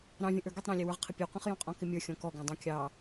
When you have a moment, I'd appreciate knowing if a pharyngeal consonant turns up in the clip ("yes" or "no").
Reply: no